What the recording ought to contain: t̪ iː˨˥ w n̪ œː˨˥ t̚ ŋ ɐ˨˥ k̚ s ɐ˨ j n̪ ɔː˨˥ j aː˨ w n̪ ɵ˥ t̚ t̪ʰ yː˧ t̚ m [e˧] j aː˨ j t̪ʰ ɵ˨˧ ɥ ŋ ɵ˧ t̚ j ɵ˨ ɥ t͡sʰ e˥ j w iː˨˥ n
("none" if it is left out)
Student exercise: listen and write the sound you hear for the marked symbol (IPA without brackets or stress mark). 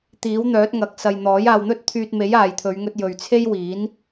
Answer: e˨˥